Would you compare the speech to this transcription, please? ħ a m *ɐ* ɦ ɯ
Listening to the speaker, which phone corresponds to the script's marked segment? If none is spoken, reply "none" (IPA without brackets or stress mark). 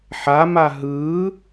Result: a